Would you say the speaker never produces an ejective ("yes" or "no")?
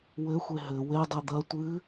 yes